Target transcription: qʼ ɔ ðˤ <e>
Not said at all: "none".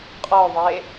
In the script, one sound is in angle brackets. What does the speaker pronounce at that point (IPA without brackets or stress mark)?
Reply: e